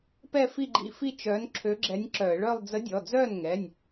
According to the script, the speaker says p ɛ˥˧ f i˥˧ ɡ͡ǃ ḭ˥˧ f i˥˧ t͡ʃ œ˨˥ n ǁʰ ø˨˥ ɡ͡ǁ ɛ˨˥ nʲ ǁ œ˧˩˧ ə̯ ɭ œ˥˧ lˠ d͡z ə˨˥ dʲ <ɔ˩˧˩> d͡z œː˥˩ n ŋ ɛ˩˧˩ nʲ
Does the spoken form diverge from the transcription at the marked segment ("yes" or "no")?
no